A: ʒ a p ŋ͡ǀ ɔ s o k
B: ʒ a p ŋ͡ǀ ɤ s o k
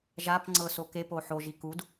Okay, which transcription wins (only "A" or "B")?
B